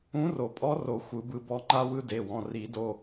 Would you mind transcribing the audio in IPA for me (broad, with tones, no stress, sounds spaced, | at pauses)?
ũ˧˥ r o˨˩˦ pʼ ɔ˧˥ r o˨˩˦ xʷ ɯ˨˩˦ b ɯ˧ b ɔ˧ ŋ͡ǃ a˧ w ɯ˧ d e˩˧˩ w ɔ̃˩˧˩ r i˨˩˦ d o˩˧˩